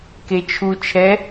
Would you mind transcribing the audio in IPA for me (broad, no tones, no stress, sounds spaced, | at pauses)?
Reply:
k e t͡ʃʰ u t͡ʃʰ ɛ